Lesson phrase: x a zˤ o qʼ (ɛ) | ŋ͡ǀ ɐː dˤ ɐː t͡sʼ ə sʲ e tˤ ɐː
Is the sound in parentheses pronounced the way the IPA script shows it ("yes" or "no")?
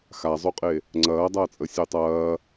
no